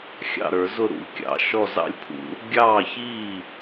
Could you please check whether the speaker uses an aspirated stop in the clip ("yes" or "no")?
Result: yes